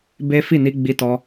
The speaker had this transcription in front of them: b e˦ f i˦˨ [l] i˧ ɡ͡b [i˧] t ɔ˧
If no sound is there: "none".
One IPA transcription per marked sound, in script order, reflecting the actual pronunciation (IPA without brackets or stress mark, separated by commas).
n, i˧